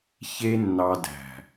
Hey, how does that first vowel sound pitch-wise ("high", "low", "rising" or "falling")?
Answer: high